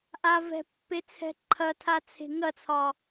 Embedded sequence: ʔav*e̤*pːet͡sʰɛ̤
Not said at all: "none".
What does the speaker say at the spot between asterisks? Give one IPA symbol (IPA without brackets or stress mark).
ɛ̤